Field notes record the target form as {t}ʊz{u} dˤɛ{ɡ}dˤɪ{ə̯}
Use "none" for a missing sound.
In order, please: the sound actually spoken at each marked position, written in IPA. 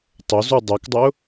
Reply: tˤ, u, k, ʊ̯

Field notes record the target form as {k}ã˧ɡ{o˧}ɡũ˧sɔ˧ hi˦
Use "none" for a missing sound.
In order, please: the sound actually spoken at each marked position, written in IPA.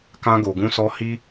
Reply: k, o˨

